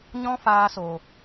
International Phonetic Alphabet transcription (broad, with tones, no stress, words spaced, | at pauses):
ɲɔ̃˦faː˧so˨